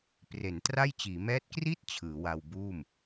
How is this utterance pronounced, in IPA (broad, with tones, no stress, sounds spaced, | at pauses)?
p r e˩˦ n t r a˥˩ j t͡ɕ iː˩˦ m ɛː˦˥ t̚ k r i˥˩ t̚ t͡ɕʰ ɯː˩˦ w a˧ w b uː˥˩ m